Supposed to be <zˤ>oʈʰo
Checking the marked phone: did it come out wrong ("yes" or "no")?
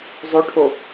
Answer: no